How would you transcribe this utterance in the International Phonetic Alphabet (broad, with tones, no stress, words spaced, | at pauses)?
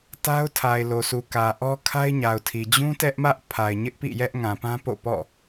ta˦ʊ̯ tʰa˨ɪ̯lo˨sʰu˨ kä˨ ʔɔ˦kʰa˦ɪ̯ɲa˨ʊ̯tʰi˨ d͡ʑũ˦ tɛ˦ʔmä˦ʔ pʰa˨ɪ̯ɲɪ˦ʔpḭ˦˨ jɛ˦ʔŋã˨pã˦po̰˦˨ pɔ̰˦˨